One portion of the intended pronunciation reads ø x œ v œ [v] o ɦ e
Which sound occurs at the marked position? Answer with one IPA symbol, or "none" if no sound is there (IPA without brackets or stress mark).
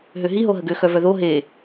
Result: ð